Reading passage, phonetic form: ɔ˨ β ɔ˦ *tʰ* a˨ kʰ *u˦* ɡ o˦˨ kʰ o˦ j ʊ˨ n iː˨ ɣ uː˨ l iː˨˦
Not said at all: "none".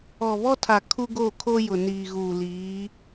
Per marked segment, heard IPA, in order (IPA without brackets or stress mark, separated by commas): tʰ, u˦